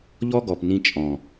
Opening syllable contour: high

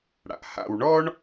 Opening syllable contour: low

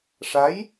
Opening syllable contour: rising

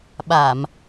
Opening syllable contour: low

